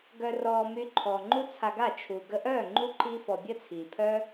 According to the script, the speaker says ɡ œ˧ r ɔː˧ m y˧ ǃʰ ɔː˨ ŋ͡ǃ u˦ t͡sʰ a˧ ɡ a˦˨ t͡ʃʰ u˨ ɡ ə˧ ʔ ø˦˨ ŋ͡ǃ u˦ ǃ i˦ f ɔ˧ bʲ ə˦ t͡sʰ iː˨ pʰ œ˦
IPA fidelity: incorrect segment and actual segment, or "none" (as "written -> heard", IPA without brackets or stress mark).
ø˦˨ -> œ˦˨